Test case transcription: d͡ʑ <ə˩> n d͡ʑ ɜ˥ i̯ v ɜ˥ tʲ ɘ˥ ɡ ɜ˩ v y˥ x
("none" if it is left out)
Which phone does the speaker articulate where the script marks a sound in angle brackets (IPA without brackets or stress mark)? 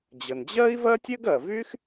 ə˩